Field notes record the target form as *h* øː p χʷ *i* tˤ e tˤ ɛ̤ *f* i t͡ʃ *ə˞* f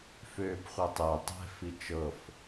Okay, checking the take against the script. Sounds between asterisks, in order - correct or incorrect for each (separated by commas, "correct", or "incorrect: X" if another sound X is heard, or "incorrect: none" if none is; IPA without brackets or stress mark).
incorrect: f, incorrect: e, correct, incorrect: ɤ